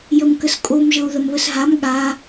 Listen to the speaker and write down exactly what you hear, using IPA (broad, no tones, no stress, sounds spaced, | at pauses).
j ə m k ə s kʼ o m ʒ ɤ u̯ ð ə m β ə s ɦ a m ɠ a